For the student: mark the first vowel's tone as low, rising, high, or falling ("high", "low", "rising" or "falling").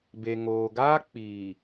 low